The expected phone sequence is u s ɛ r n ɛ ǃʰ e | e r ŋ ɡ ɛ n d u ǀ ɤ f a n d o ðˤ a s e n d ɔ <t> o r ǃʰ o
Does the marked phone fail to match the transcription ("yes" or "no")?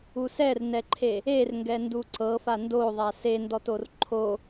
no